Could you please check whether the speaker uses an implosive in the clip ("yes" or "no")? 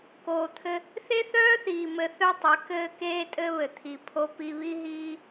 no